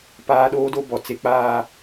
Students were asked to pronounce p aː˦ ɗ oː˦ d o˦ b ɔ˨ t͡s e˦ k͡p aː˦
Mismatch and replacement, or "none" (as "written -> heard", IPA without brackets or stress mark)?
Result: none